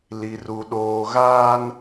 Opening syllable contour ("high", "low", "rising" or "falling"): low